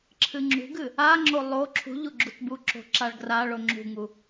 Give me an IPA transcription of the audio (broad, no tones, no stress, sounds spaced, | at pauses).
ǁʰ ɨ ŋ͡ǁ ṳ ɡ ɨ | a ŋ͡ǁ o lˠ o ǁʰ ṳ ʎ u ɡ͡ǁ u t b u ǁ o̤ ǁ a ɭ ɡ r a ɭ o ŋ͡ǁ ṳ ŋ u